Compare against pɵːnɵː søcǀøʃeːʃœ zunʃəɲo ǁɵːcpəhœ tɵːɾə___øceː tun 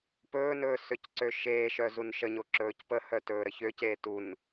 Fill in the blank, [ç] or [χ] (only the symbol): ç